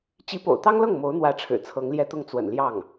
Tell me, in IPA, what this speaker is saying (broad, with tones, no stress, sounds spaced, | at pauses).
t͡ɕ i˧˥ p o̰˨˩ ʊ̯ t̪ ɑ˥ ŋ l ɤ˥˩ ŋ m o˧˥ ʊ̯ n̪ w ä˧˥ ʈ͡ʂʰ ɻ̩˨˩ t͡sʰ ɤ˧˥ ŋ l j ɛ˥ t̪ ʊ˥˩ ŋ t͡s w ə̰˨˩ n l j ɑ˥˩ ŋ